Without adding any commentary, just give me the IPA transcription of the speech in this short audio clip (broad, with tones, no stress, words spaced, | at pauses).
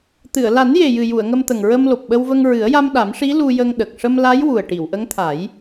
t̪ɨ˨˩˨ə̯la˨˩˦nje˨˩jɨ˨˩ ju˨˩˨ə̯ ŋə˧mt̪ə˨˩ŋɹə˧m lo˨˩p̚ɓə˧wvə˧ŋ ɹɨ˨˩˦ə̯ja˧m ɗa˨˩˦mʂi˧˥ lu˧jə˧ŋɗə˨˩k̚ ʂə˧mla˧˥j wu˨˩ə̯ʈi˨˩˨wʔə˧˥ŋt̪ʰa˨˩˦j